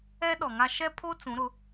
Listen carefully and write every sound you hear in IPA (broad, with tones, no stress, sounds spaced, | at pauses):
ɛ˦ ɗ ɔ˨ ŋ a˦ ʃ ɛ˦ pʰ o˦ t͡s ũ˨˦ ɾ ʊ˨˦